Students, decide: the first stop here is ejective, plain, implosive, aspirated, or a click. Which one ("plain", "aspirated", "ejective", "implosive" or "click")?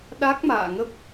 implosive